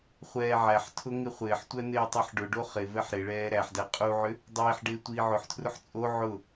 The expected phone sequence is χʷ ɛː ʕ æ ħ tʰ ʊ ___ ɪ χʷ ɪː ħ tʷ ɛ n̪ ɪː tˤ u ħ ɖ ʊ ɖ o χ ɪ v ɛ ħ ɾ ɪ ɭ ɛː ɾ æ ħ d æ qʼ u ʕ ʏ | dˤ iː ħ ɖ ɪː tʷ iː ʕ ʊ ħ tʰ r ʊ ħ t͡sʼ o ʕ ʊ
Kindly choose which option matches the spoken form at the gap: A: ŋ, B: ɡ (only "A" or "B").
A